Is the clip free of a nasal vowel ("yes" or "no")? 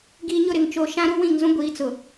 no